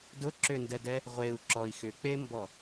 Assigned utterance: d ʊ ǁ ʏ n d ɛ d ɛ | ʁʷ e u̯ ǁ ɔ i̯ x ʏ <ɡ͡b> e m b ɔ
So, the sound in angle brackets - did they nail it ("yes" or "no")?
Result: no